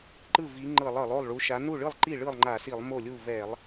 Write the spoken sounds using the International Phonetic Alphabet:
ǃ ɯ˥˩ v i˨˦ ŋ͡ǃ ɤ˧˩˧ lˠ ɤ˧˩˧ lˠ o˥˩ lˠ ɭ u˨˦ ʃ a˨˦ n u˥˩ ɭ ɯ˥˩ lˠ ǃ i˥˩ ɭ ɯ˥˩ lˠ ŋ͡ǃ a˧˩˧ s i˧˩˧ lˠ m o˥˩ lʲ u˥˩ v ɛ˧˩˧ lˠ

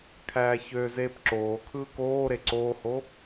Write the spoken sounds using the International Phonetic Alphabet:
kʰ æː ç ø z eː p ǁ oː kʰ ɯː k oː ɾ e ǀ oː h o

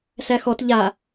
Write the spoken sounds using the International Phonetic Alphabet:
s æ x ɔ t ʎ a

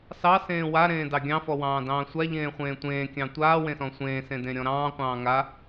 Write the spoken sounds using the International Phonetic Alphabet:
s ɑ s ẽː w a ɾ ẽː d ɑ ɡʲ ɑ̃ f ɔ w ɑ̃ː d ɑ̃ː sʷ a ʎ ẽː χʷ ẽː tʷ ẽː kʲ ɑ̃ tʷ aː w ẽ s ɔ̃ sʷ ẽː s ẽ d ẽ ɾʲ ɔ̃ ɾ ɑ̃ː qʷ ɑ̃ː ŋ a

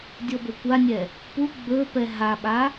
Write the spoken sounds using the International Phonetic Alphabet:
dʲ ɔ b ɵ kʷ a nʲ ɛ | p u ɡ͡b ɵ p ɛ ɦ a ɓ a

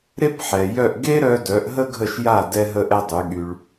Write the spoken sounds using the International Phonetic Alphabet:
ɾ e˥ p ħ ɛ˩ j œ˥˩ ʔ ɡ e˥ ɾ œ˧ d œ˩˥ ʔ ɦ ə˥ ɡʱ ə˥˩ ʃ j a˥˩ d ɛ˥ ɦ ə˥ ʔ ɛ˥ dˤ y˩˥ ɠ y˧ ɭ

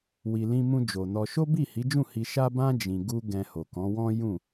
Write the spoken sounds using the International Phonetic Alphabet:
w i˨ l ĩ˧ m ũ˧ d͡ʒ o˨ n ɔ˧ ʃ o˦ b i˦˨ h i˨˦ d͡ʒ ũ˦˨ h i˧ ʃ a˦ b ã˦ d͡ʒ ĩ˧ ɡ u˦ ɡ ɛ̃˧ h o˨ k ɔ̃˨˦ w ɔ̃˦ j ũ˦˨

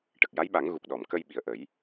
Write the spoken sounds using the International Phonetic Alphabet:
ʈ ə˨˩ k̚ j a˧˥ j ɓ a˨˩˦ ŋ ɣ u˨˩ k̚ ɗ ɔ˨˩˨ m k ə˧ j ɓ i˨˩ ə̯ ʔ ə˨˩˦ j

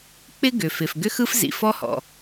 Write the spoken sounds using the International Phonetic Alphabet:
k͡p ɪ˥ ɡ ʏ˩ f ɪ˩ f ɡ ʏ˥ x ɯ˥ f z ḭ˩ f ɔ˥ h ɔ̰˩

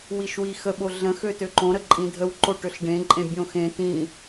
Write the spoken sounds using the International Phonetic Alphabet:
w i ʃ w i x ə ɓ o ɮ ə̃ x ø t ø ǃ õ ɾ ə ǃʼ ĩ dʱ ə w ǃ o ʈ ø ɬ ɖ ẽ ǃʼ ẽ bʲ õ x ẽ t ĩ

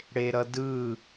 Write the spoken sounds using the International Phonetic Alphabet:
ɽ e ɾ ʌ d ɯ

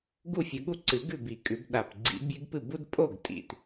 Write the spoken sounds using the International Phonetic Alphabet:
ɡ u˥˩ fʲ ɵ˨˦ ɠ u˦ ǀ ɨ˨˩˦ ɡ ʉ˥˩ b i˨˩ kʼ ʉ˨˩˦ b ɗ a˨˩ p ɡ͡ǀ ḭ˨˦ bʲ ʉ˦ ɡ p ɨ˥˩ b u˦ d pʼ o˥˩ ɡ tʼ ḭ˨˩ t

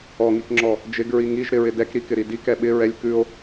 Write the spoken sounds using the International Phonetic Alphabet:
ɔ ŋ i k ŋ͡ǁ ɔ | d͡ʒ ɪ ɡ ɹ i ŋ i ʒ ɾ ɪ ɹ ɪ d ɛ k ɾ i k ɪ ɾ i d i k ɛ ɓ ɪ ɹ ɛ lʲ k ʉ o̯

